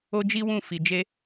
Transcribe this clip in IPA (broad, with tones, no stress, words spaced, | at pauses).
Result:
o˦d͡ʒi˦wũ˦˨ fi˨d͡ʒe˧